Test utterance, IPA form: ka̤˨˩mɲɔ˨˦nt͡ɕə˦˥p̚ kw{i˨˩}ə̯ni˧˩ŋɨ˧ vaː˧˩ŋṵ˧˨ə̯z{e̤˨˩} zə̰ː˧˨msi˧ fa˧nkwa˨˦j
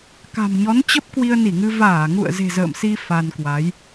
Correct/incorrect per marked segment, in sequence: incorrect, correct

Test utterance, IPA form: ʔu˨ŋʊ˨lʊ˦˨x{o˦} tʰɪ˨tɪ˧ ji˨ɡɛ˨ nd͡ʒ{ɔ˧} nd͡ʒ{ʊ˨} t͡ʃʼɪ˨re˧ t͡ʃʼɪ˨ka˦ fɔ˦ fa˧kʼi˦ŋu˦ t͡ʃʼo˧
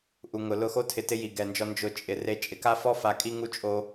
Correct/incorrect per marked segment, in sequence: correct, correct, correct

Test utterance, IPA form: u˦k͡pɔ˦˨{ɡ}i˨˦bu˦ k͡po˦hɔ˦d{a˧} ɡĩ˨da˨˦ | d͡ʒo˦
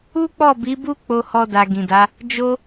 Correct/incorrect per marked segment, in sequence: incorrect, correct

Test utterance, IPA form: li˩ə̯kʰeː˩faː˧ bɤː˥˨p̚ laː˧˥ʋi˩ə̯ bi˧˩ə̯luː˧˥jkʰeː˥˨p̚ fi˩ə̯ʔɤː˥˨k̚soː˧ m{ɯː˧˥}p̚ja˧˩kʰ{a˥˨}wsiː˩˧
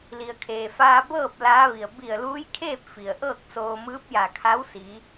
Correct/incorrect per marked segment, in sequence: correct, incorrect

